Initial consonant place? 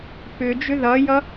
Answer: labial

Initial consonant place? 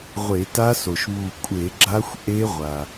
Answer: uvular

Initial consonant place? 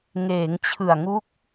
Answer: velar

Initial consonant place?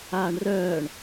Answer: retroflex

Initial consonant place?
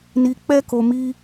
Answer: alveolar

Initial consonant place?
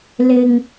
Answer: alveolar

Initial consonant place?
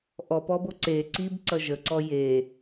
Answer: glottal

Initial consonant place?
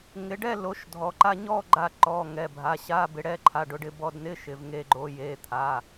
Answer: velar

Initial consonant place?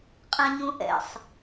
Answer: uvular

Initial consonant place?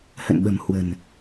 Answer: glottal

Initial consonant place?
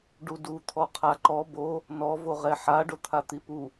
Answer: retroflex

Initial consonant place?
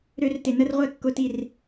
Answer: alveolar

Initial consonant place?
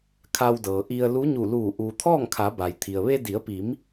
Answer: velar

